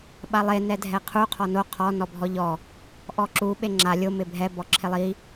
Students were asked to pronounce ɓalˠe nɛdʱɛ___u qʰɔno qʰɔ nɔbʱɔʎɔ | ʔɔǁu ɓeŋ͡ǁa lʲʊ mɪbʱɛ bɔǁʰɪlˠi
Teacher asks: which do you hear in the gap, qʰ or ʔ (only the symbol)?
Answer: qʰ